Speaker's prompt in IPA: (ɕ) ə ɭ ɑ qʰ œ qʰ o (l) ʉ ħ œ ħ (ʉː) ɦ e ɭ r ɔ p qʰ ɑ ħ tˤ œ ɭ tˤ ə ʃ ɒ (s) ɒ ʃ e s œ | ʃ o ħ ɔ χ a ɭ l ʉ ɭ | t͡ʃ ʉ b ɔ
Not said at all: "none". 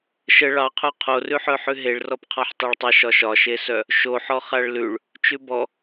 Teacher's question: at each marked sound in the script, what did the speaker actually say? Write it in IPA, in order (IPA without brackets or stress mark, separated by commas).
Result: ʃ, r, ʉ, ʃ